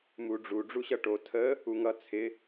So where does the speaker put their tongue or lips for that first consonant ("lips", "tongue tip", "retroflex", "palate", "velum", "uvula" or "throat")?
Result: lips